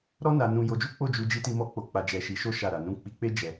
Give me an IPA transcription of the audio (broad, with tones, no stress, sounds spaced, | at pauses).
ɾ ɔ˦ n a˧ n ũ˧ j o˧ d͡ʒ u˦ k͡p o˦˨ d͡ʒ u˧ d͡ʒ i˧ t i˧ m ɔ˦ k͡p o˧ k͡p a˧ d͡ʒ ɛ˧ ʃ i˧ ʃ o˦ ʃ a˦˨ ɾ a˧ n ũ˦ k͡p i˧ k͡p e˦ d͡ʒ ɛ˧